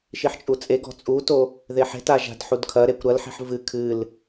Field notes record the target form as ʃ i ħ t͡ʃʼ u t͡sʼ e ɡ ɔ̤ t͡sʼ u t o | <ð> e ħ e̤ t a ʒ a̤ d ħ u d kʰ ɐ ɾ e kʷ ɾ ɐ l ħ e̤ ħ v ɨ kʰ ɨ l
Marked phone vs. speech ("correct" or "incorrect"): correct